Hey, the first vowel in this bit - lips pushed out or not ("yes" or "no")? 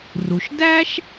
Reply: yes